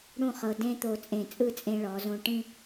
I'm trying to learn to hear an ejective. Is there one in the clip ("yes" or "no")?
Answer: yes